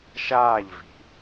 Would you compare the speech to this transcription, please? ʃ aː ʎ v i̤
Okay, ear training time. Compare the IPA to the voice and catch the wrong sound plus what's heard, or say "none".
none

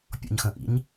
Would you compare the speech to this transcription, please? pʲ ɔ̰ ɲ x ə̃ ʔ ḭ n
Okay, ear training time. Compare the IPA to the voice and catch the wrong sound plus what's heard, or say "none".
n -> ɲ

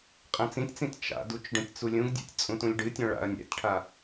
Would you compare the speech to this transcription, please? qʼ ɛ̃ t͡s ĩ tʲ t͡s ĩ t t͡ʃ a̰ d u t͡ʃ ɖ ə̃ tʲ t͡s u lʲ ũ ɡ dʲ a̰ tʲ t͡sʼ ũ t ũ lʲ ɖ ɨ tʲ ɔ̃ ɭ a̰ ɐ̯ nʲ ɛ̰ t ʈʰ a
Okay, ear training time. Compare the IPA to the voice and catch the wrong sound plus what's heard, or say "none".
none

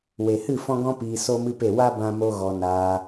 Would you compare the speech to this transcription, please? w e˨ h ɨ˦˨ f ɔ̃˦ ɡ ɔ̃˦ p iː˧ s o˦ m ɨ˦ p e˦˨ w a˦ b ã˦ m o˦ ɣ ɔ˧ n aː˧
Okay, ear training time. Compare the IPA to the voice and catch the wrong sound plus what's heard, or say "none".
none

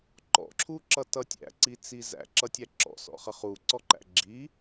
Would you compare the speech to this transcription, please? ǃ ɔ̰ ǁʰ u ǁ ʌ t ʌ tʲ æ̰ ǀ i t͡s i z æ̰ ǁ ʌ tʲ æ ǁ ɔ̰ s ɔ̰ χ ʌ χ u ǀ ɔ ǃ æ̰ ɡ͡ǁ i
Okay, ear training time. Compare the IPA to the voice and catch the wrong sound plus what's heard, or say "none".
none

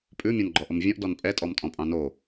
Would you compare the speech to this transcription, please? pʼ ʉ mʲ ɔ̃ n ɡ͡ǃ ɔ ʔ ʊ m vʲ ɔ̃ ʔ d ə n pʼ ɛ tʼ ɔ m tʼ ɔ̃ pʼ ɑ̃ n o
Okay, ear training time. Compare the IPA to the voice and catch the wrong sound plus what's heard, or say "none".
ə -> ɔ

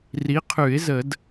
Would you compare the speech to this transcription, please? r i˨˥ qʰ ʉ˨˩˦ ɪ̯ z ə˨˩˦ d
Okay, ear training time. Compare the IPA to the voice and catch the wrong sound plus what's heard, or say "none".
none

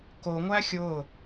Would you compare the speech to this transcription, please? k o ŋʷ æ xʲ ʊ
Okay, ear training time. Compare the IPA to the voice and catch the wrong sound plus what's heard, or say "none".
ʊ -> ʊː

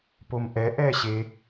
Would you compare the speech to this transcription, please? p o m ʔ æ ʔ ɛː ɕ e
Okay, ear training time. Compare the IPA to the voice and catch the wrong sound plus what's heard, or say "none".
æ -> ɛ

